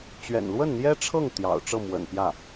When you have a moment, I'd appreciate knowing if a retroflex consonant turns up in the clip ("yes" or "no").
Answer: yes